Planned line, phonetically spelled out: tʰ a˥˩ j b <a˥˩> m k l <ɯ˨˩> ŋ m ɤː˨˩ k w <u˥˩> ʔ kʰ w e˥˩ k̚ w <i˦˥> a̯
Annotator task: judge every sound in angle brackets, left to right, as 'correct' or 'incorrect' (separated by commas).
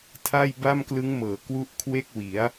correct, incorrect, incorrect, incorrect